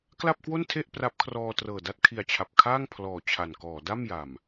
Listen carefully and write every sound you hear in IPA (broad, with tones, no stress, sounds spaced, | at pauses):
k l a˥˩ p̚ k w o˥˩ n tʰ e˥˩ ʔ p r a˦˥ p̚ kʰ r ɔː˧ t r ɤː˨˩ d a˥˩ t̚ kʰ i˨˩ a̯ t͡ɕʰ a˨˩ p̚ kʰ aː˥˩ ŋ pʰ l ɔː˨˩ t͡ɕʰ a˨˩ n k ɔː˩˦ d a˥˩ m j a˨˩ m